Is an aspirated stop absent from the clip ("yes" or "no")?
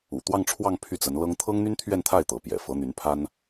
no